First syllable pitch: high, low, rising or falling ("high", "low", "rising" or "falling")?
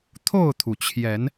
falling